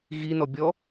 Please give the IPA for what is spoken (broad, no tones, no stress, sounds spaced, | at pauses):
ɣ i n ɔ bʲ ɔ